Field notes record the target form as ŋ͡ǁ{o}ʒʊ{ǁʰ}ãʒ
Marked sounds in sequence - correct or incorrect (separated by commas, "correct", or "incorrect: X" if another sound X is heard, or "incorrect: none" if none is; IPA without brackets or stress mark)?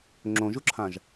incorrect: õ, correct